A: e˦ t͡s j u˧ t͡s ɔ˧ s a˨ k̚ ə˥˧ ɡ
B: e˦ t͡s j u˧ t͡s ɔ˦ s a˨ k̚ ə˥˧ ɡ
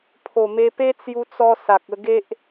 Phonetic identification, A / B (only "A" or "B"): A